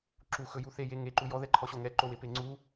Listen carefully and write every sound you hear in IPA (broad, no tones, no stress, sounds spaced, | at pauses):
ǁ u x ɵ j u θ e j e ŋ e ǃ u j ɔ ð ɛ ǃʰ ɔ ɕ o ŋ ɛ ǃ o w e p e ŋ͡ǀ u